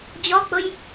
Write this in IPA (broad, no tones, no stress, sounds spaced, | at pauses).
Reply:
d͡ʑ ɔ k͡p ʊ j